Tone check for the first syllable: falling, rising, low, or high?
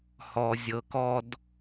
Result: low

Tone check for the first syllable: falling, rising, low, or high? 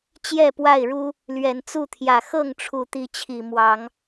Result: falling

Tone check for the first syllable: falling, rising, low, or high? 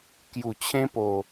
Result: low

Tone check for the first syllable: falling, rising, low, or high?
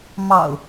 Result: low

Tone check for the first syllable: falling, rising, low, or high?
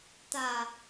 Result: low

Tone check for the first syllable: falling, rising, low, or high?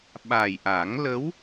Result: low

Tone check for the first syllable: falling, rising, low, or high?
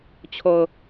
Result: low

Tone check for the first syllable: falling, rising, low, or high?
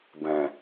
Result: low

